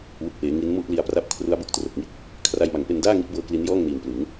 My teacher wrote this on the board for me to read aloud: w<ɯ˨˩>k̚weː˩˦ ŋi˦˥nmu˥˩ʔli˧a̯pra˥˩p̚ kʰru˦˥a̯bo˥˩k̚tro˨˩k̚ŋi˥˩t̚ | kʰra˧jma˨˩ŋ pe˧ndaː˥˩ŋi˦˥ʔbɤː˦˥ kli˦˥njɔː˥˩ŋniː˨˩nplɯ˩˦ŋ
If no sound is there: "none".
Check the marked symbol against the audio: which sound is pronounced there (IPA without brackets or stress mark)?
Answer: ɯ˨˩